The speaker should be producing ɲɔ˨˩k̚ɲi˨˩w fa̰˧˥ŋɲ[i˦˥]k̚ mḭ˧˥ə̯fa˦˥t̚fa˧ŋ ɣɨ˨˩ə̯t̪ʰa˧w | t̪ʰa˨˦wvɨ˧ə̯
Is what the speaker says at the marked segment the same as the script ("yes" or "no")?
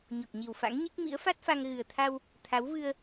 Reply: yes